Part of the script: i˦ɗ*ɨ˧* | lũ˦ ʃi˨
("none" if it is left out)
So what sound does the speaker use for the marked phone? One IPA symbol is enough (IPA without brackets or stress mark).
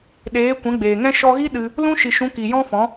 ɨ˧